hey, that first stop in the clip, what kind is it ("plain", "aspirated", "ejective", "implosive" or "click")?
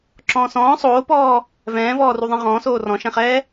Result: click